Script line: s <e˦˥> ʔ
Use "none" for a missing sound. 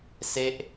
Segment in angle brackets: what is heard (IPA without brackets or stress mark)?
e˦˥